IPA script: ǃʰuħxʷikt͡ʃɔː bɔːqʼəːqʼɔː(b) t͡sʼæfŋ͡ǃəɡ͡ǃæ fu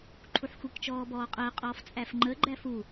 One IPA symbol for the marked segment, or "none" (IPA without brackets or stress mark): f